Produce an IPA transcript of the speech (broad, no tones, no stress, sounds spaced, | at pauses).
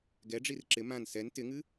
ɡ ɛ ɖ͡ʐ i r ǁ ɪ m ã n s ɛ n t ɪ ŋ ɨ